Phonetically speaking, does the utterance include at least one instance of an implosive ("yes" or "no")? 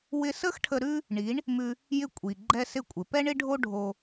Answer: no